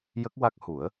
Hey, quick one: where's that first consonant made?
palate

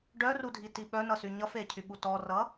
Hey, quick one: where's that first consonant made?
retroflex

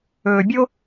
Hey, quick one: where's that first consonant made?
lips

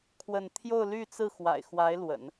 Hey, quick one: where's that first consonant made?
velum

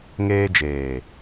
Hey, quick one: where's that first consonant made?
velum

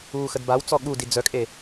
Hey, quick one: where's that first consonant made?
velum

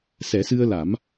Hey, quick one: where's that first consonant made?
tongue tip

